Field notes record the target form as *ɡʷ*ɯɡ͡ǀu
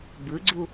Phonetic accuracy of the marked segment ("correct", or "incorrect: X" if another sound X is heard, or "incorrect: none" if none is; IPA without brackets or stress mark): incorrect: b